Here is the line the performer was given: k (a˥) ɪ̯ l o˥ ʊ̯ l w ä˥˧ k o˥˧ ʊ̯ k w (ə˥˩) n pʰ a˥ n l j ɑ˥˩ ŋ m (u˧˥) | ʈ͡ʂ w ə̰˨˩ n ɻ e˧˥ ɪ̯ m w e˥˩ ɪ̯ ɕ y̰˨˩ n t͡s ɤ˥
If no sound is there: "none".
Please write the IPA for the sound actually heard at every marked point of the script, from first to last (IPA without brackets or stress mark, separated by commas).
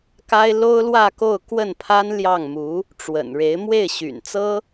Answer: a˥, ə˥˩, u˧˥